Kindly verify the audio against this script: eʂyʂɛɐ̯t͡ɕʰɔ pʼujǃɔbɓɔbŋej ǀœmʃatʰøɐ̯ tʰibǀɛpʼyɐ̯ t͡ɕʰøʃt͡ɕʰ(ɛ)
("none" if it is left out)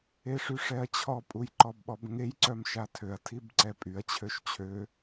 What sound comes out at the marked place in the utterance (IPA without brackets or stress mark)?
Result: ø